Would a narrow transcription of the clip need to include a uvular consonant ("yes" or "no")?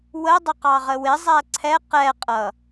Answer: yes